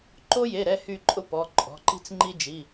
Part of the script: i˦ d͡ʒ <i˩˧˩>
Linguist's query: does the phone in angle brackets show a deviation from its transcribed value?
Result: no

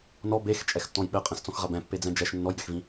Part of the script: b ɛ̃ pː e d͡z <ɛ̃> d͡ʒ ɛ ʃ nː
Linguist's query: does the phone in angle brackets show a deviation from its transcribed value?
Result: no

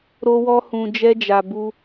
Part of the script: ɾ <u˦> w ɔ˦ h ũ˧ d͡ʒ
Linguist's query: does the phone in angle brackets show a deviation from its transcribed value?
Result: yes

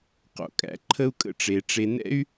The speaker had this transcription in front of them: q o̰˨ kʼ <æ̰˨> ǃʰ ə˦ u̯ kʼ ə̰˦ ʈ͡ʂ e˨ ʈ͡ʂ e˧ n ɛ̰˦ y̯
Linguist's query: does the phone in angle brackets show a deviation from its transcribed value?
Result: yes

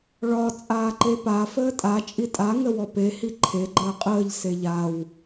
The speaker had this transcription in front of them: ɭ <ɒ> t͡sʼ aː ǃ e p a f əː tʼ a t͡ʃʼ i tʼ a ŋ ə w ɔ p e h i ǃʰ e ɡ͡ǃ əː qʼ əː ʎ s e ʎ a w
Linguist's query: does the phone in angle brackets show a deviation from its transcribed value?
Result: no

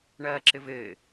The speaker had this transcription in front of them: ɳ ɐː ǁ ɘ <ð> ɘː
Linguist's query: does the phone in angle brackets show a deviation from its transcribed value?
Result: yes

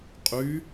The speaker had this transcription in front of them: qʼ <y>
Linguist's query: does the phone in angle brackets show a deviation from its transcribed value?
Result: no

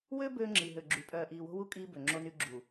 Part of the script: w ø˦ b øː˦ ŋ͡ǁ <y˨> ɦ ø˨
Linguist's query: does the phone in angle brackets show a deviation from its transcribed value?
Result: yes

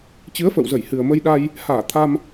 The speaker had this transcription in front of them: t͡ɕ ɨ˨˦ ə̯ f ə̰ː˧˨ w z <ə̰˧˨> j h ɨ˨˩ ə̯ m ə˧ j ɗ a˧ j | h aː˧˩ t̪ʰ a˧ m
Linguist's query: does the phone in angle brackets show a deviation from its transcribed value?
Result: yes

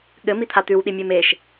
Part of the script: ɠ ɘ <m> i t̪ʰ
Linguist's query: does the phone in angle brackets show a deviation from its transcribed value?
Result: no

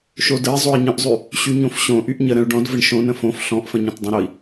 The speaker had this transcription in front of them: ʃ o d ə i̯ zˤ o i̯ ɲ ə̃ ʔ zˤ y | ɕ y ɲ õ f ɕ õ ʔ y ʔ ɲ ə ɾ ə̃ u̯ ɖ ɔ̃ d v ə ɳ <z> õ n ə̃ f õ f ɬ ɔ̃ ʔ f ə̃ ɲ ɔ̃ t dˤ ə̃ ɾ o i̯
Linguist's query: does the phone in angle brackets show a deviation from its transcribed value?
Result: yes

